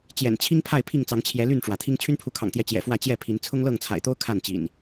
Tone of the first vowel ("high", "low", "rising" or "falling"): low